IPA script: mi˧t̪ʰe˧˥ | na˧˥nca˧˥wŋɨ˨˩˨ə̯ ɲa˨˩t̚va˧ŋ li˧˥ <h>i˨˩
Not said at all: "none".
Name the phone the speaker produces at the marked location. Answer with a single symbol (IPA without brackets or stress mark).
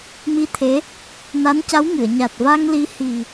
h